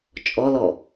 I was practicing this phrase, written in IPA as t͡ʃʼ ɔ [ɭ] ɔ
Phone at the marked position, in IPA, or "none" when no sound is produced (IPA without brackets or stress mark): l